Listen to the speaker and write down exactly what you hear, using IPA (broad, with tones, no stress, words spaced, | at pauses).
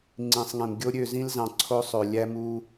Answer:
ŋ͡ǀĩ˨sˤŋẽ˨mɡʲo˦ ɾʲø˦˨zĩ˦lzɑ̃˨ ǀʰo˦sˤø˨ lʲæ˦mu˦